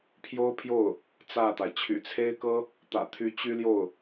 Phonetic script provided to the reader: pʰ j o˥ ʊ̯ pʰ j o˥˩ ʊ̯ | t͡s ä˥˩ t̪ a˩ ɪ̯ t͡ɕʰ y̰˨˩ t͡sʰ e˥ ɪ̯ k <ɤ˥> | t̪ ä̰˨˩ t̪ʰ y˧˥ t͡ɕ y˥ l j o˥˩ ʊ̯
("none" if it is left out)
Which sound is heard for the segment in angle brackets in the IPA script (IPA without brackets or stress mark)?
ɤ˥